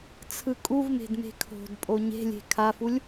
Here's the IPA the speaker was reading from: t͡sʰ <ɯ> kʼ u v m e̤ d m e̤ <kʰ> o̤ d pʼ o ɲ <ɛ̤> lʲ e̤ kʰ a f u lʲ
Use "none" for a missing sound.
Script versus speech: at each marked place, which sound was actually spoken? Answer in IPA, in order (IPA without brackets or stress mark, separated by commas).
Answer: ɯ, kʰ, e̤